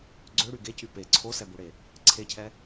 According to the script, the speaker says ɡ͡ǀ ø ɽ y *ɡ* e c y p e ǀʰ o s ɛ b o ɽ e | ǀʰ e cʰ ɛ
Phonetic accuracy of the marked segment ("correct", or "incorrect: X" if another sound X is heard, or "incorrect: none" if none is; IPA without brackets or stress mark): correct